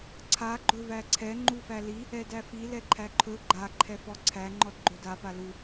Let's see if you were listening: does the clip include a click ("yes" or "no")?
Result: yes